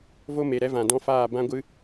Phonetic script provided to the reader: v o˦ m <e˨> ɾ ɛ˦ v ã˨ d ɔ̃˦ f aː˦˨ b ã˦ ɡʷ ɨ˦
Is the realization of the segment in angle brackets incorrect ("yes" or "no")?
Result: no